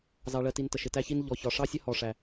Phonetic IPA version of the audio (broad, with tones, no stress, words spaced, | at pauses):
zɑ˧ɭɜ˧ti˧n tə˧ʃɪ˧tæ˥çi˥n ʎɔ˧çɒ˧ʂɑ˥sʲə˥ hɔ˧ʂæ˧